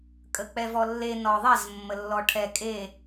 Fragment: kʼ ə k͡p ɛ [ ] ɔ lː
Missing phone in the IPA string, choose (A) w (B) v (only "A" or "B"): B